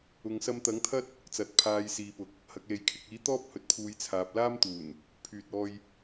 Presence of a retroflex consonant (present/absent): absent